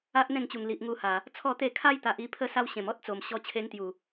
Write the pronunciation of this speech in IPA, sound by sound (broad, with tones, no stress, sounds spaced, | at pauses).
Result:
a˦ ʔ n̪ ẽ˥˧ ŋ t͡ɕ u˨˩ ŋ l i˨ ʔ ŋ u˧ h a˨˩ | t͡sʰ ɔ˥˧ t̪ e˥˧ kʰ a˦ j t̪ a˨ ʔ i˥˧ pʰ ə˦ s a˦ w ɕ ẽ˨˩ m ɔ˦ t̚ t͡s o˨˩ m ɕ ɔ˧ t͡ɕʰ e˧ ŋ t̪ j u˨˩